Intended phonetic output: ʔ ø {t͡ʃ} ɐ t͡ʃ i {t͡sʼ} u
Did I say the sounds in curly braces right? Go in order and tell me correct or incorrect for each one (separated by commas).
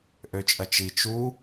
incorrect, incorrect